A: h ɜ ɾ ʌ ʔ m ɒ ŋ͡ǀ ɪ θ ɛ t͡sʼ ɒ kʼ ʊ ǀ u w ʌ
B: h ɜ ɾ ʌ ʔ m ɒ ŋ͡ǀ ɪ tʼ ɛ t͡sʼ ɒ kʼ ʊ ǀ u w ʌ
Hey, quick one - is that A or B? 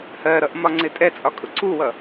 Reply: B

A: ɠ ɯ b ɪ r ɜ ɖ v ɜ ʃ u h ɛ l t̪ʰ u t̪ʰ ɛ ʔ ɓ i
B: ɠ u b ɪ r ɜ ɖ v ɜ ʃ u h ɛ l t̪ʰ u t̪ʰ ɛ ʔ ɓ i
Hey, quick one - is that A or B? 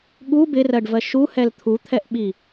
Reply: B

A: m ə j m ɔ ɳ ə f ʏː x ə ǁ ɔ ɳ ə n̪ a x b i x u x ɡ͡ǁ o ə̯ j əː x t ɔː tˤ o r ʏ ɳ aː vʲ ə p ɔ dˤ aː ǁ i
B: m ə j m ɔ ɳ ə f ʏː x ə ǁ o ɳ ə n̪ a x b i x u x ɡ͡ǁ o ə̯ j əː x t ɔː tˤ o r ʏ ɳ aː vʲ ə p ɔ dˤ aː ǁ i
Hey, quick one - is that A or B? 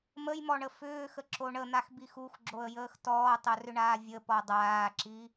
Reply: B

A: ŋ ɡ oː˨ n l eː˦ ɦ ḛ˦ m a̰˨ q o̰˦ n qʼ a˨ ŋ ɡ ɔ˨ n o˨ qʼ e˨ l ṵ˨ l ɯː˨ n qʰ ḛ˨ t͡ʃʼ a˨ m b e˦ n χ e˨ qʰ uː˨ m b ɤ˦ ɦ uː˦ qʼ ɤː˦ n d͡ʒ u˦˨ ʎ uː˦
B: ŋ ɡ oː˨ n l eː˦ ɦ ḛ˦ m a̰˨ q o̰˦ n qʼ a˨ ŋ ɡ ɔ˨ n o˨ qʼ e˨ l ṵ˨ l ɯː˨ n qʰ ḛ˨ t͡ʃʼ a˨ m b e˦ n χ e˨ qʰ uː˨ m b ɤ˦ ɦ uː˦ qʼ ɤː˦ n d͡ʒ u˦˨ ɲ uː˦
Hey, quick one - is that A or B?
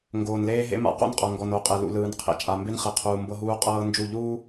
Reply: A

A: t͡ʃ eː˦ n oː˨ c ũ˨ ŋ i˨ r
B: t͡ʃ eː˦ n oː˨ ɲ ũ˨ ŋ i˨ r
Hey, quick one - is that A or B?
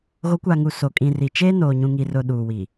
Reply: B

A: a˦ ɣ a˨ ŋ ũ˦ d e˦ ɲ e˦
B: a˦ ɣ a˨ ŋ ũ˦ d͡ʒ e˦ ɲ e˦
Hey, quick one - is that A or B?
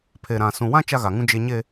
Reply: B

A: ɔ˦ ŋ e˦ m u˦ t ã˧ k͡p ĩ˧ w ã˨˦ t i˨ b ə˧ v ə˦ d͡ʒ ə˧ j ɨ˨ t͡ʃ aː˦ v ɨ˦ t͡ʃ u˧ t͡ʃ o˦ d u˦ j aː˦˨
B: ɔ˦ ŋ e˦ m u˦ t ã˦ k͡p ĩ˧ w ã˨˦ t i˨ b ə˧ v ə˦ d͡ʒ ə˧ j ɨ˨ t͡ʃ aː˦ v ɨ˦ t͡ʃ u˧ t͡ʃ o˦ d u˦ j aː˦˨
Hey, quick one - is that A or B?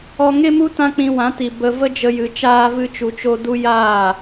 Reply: B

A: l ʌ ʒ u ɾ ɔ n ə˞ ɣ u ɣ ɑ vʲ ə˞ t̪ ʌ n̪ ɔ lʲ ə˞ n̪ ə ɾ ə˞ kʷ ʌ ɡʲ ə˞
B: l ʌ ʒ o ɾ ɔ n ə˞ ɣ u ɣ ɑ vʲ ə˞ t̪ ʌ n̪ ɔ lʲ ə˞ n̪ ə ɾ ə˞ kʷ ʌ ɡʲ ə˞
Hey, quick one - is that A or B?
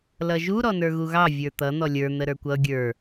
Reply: A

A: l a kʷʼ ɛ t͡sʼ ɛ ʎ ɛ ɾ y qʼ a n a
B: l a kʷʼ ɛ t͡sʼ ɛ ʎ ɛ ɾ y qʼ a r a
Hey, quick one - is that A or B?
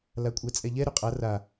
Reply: B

